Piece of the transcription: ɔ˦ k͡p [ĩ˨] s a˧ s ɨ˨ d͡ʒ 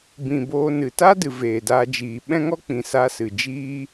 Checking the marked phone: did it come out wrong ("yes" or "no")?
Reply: no